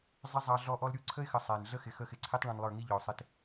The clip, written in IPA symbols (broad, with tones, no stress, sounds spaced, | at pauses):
zˤ ɪ˦ zˤ ɑ˧ ɮ ɔ˧ ʔ ɔ˧ l ɾʲ u˧ ǀʰ ə˦ ɪ̯ x ə˨ sˤ æ˨ n ɮ ə˦ x ɪ˨ x ə˦˨ x ɪ˧ ǀʰ i˦ tˤ ɭ ɔ̃˧ n lˠ ə˞˦˨ ŋ i˦ ʎ ɔ˨ ʊ̯ sˤ ɪ˧ t